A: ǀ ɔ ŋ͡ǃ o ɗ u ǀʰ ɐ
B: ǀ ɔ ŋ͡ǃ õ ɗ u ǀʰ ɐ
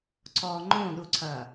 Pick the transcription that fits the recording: B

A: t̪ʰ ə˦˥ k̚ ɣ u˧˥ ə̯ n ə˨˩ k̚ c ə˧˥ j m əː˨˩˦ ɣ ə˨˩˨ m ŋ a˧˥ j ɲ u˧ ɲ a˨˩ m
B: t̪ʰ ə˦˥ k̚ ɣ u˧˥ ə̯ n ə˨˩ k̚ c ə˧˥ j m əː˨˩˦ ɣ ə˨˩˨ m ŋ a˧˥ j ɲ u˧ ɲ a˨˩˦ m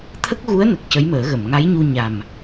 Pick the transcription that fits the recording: A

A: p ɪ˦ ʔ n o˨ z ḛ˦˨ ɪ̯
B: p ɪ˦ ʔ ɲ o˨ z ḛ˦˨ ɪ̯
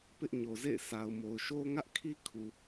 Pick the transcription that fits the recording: B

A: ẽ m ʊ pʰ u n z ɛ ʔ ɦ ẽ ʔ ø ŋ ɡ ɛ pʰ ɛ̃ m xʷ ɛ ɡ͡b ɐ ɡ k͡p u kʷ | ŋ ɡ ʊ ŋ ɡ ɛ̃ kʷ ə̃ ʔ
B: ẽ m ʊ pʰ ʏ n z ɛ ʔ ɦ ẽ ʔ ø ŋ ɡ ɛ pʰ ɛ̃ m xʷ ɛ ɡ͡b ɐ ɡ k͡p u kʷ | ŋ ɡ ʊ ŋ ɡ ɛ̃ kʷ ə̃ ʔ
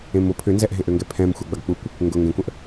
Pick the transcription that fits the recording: B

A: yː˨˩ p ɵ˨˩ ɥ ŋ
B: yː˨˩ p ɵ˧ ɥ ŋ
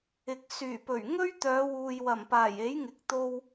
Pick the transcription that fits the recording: A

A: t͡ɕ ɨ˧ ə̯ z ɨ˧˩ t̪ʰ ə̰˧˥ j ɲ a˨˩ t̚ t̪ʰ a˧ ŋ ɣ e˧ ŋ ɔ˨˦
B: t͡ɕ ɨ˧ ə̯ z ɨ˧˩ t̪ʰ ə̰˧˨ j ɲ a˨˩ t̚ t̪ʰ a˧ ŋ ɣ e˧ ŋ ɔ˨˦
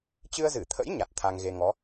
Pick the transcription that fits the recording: A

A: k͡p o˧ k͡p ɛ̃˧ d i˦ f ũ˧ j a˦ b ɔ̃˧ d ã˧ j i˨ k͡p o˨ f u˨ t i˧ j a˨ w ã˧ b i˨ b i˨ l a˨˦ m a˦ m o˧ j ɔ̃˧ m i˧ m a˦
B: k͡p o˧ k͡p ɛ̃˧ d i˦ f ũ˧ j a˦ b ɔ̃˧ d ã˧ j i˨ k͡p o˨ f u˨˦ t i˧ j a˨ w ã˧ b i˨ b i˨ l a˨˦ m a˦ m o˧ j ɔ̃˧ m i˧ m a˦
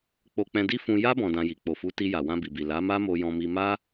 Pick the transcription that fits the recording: B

